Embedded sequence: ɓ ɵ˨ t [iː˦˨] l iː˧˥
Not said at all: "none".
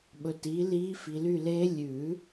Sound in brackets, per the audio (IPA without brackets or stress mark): iː˩˥